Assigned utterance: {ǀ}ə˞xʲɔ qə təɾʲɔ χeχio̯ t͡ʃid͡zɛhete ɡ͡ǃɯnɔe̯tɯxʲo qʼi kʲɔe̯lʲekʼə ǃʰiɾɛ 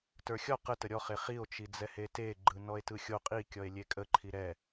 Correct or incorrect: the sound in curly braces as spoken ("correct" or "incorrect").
incorrect